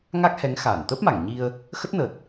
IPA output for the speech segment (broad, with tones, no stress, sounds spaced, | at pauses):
ŋ a˦˥ k̚ h ɛ˨˦ ŋ x aː˧˩ n t̪ ə˦˥ p̚ m a˧˩ ŋ ɲ i˧ ə̯ | x ə˦˥ t̚ n əː˨˩ t̚